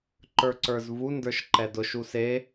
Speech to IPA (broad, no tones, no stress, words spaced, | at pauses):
ǃə˞ǀə˞zvu ndə˞ʃǃɛdʊʃ use